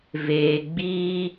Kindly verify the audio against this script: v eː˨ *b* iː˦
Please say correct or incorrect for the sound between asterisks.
incorrect